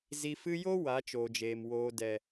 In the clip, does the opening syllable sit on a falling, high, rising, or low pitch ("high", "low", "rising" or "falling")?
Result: low